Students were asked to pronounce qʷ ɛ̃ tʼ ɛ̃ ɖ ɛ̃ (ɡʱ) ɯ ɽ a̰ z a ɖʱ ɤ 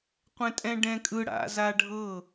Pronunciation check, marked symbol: incorrect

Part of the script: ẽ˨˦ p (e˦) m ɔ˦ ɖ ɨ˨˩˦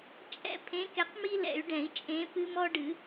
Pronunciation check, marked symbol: incorrect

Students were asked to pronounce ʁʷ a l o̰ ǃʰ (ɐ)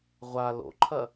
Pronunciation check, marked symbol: correct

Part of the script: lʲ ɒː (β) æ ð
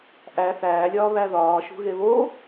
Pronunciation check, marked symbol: correct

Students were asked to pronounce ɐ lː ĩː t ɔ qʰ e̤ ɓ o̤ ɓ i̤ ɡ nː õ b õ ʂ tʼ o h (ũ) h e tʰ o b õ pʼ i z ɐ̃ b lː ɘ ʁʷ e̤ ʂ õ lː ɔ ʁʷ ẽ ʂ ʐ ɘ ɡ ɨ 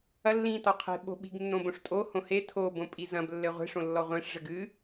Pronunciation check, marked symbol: incorrect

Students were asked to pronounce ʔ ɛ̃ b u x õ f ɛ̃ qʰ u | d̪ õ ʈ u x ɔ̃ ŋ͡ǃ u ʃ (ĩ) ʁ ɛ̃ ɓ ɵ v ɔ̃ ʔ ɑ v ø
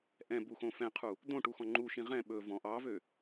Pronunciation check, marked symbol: correct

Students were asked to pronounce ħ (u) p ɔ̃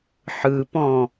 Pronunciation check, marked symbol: incorrect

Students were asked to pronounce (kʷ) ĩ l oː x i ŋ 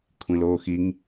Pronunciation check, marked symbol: incorrect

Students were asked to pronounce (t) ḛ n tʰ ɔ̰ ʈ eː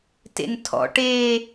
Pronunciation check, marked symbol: correct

